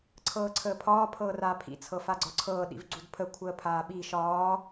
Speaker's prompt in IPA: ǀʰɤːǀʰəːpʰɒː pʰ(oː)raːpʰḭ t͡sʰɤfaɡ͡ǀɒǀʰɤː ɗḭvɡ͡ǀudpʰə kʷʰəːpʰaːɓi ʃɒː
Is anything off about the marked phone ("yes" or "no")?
yes